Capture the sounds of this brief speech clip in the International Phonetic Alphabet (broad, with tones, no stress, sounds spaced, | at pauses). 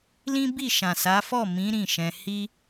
l ĩ˦ b i˦˨ ʃ ã˨ s a˨˦ f ɔ˦˨ m ĩ˨˦ ɾ ĩ˦˨ ʃ ɛ̃˧ h i˦